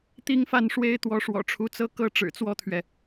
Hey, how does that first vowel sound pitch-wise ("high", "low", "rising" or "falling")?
high